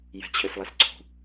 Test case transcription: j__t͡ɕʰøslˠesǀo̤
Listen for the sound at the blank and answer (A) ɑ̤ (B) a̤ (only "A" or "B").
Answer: B